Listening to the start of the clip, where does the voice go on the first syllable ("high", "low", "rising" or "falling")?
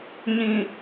low